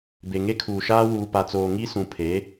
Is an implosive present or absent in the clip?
absent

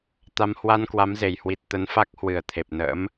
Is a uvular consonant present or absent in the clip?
absent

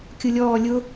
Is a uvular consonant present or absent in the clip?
absent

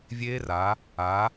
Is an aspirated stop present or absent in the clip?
absent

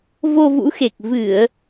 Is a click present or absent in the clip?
absent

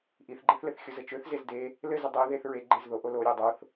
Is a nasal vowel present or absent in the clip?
absent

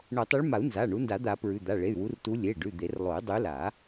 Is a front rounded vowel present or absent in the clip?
present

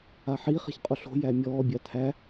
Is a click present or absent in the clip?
absent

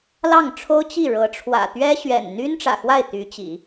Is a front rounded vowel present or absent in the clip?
present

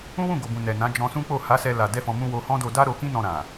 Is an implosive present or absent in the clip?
absent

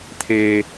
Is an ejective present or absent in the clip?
absent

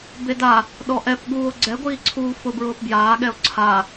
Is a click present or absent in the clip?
present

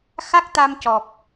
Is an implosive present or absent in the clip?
absent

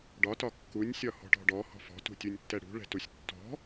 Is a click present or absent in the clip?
absent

